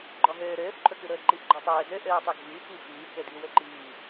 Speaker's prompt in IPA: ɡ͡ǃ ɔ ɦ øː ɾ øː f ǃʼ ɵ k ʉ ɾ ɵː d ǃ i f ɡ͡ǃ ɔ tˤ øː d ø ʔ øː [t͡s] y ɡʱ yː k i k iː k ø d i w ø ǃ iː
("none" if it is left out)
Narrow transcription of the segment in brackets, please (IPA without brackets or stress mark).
tˤ